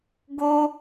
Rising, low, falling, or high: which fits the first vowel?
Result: high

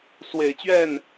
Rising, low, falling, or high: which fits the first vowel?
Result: low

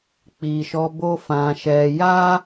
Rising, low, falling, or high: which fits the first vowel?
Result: low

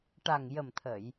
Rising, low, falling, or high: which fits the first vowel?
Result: low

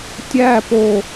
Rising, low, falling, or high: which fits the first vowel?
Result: falling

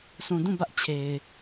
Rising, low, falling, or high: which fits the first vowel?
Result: low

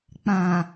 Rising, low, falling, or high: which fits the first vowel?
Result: low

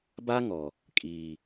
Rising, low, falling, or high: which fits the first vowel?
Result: high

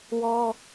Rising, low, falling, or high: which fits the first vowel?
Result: high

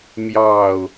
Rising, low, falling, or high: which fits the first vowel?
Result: falling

